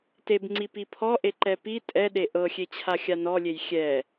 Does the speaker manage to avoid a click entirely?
no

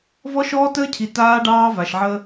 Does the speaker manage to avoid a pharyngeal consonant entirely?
no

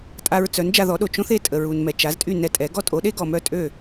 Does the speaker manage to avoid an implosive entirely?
no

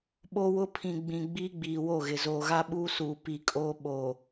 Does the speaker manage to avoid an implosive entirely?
no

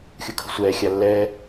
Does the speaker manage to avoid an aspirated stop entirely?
no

